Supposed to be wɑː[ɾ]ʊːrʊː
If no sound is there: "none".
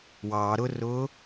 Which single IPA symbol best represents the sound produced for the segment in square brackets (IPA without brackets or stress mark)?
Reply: ɾ